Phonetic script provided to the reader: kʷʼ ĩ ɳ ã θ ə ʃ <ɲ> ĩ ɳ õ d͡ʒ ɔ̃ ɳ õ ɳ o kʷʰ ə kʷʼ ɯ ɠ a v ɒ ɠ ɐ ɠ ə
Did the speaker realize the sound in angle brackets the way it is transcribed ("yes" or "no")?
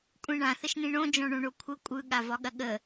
no